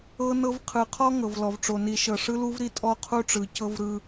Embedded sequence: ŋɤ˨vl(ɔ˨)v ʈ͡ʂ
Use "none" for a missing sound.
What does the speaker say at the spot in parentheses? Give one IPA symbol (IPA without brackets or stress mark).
ɔ˨